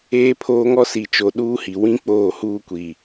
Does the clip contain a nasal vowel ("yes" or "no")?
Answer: yes